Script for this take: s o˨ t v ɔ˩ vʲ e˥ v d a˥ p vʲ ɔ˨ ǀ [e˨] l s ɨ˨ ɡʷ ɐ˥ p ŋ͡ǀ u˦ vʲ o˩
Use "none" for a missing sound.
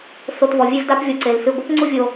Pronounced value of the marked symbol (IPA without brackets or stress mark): e˩